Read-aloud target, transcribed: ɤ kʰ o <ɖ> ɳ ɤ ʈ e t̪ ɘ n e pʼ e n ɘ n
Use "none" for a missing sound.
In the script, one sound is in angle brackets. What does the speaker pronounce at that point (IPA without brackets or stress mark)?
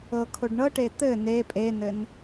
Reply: ɖ